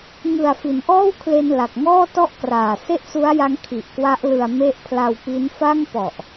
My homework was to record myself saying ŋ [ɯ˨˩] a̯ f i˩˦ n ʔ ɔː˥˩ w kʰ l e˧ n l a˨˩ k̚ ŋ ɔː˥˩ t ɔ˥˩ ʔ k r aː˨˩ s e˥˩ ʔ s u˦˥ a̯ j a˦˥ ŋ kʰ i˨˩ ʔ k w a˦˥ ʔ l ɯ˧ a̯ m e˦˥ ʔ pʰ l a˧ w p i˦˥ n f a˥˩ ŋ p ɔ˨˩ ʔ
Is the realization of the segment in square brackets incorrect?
no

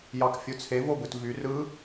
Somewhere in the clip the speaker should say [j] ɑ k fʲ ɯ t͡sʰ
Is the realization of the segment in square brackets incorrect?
no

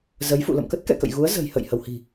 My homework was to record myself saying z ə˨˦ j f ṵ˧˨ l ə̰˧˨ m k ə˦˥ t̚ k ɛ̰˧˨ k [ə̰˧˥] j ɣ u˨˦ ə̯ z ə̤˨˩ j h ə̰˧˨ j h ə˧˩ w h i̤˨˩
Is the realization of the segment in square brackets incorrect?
yes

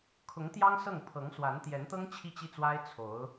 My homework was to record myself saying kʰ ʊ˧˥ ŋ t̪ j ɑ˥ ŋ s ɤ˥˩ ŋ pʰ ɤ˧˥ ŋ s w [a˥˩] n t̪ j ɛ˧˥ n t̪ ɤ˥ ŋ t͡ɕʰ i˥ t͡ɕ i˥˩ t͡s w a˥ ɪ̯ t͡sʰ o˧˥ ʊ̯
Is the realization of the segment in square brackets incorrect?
yes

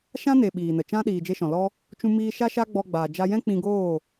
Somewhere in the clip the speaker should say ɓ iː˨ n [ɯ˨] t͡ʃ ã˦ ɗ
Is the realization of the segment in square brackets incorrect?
yes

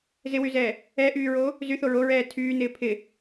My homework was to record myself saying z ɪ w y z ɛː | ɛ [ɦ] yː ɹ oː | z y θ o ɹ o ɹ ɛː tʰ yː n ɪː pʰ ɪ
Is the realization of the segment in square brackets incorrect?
yes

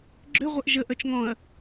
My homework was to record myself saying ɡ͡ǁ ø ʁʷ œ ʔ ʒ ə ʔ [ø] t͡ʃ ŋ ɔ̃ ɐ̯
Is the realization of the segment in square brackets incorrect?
yes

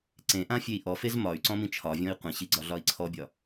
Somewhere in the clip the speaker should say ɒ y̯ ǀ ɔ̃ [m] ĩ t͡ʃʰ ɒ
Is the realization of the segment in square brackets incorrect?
no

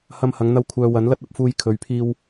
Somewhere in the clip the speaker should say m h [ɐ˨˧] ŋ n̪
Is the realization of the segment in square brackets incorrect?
no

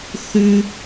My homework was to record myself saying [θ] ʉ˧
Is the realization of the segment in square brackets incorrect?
no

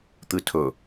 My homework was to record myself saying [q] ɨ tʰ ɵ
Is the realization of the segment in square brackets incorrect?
yes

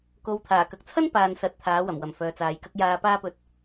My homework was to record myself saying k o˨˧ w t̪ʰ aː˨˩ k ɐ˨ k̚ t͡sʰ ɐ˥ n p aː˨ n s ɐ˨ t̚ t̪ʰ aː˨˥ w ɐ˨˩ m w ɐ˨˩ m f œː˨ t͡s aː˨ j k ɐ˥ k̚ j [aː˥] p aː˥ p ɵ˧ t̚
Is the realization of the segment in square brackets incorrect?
yes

